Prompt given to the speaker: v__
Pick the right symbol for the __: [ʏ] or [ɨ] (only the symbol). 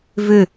ʏ